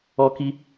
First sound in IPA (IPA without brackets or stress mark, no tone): ɔ